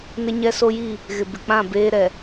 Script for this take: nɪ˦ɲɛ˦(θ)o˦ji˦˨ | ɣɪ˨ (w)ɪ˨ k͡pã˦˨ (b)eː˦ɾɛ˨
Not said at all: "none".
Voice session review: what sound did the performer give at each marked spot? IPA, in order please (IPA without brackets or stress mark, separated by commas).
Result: s, b, b